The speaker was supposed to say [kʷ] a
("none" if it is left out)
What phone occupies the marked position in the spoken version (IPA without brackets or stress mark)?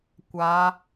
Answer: kʷ